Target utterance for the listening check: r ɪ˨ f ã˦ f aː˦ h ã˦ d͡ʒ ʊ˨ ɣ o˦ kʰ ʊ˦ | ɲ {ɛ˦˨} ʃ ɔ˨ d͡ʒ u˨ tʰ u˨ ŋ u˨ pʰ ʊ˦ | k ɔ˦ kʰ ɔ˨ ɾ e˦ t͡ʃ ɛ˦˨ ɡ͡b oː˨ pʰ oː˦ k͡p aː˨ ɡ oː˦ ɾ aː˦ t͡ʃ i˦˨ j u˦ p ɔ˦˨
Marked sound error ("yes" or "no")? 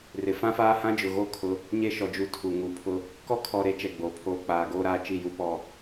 yes